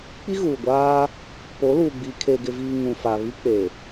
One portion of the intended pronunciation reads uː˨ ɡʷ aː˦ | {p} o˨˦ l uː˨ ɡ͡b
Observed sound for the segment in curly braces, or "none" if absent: p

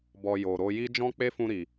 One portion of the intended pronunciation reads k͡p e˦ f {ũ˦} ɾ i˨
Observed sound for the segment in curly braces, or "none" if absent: ũ˧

